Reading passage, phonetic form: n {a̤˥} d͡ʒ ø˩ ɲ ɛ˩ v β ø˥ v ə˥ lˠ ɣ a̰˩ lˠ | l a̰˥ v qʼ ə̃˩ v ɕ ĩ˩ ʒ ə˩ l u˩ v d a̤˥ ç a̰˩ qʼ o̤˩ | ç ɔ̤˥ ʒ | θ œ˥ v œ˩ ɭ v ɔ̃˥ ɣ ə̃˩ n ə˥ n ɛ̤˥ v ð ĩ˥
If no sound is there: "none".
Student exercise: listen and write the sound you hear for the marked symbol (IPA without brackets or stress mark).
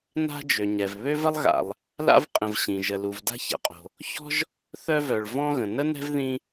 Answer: a̤˥